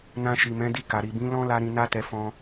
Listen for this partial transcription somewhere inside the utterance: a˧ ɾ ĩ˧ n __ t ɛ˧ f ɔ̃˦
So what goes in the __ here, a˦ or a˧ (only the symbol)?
a˦